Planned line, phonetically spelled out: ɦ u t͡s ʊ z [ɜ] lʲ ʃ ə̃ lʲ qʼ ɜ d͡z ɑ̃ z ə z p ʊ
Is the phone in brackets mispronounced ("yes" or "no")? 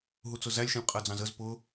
yes